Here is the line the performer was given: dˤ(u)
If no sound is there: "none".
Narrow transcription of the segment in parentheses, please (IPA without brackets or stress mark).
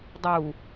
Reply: u